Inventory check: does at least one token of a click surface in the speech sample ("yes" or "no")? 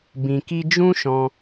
no